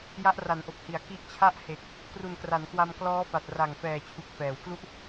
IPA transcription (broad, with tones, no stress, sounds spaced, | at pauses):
j a˦˥ ʔ r a˩˦ n ʔ o˨˩ k̚ h i˩˦ a̯ k i˦˥ ʔ t͡ɕʰ a˥˩ ʔ h e˨˩ k̚ | k r u˨˩ n k r a˩˦ n k w a˧ m k l ɔː˦˥ f a˨˩ t̚ r a˨˩ ŋ f ɛː˨˩ t͡ɕʰ u˨˩ k̚ f ɛː˩˦ w k l u˥˩ ʔ